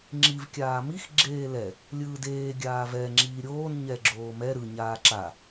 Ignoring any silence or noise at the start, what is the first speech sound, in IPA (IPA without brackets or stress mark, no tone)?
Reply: ŋ͡ǁ